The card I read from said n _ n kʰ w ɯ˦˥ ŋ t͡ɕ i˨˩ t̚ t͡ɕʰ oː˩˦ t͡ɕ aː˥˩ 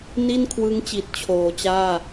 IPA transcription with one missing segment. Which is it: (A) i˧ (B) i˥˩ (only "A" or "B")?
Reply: B